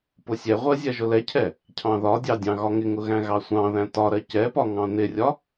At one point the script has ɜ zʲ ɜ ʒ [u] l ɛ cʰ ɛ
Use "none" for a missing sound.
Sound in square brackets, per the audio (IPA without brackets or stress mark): ʊ